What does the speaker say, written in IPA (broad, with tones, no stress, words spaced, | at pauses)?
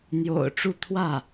n̪jo̰˨˩ʊ̯ ʈ͡ʂu˥˧ t̪ʰwä˥˩